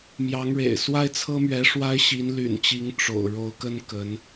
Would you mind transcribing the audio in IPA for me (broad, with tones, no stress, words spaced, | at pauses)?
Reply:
mjɑ˧˥ŋɻḛ˨˩ɪ̯ swa˥ɪ̯t͡sʰɤ˥mɥɛ˧˥ ʂwa˥ɪ̯ɕi˧˥nly̰˨˩nt͡ɕi˧˥ŋ ʈ͡ʂo̰˨˩ʊ̯ ɻo˧˥ʊ̯kə˥n kə˧˥n